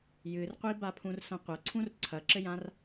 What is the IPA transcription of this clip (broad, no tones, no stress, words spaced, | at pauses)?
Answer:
jɨrqʷiba pʰũrsɐ̃qʷɐ ǀʰũrǀʰɐǁɘjãr